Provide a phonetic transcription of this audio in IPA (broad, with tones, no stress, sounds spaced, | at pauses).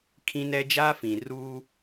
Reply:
kʰ ĩ˦ n ɛ˦ d͡ʒ aː˦ f ĩ˨ r uː˦